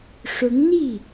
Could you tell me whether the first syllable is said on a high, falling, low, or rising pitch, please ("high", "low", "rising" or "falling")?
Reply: rising